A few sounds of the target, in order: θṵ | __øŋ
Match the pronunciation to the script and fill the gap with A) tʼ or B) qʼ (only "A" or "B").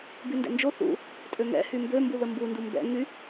A